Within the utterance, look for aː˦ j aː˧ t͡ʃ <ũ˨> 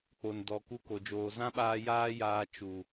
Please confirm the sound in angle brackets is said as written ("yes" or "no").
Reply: no